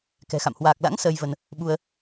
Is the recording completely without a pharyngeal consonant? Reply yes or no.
yes